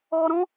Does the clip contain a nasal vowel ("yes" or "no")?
yes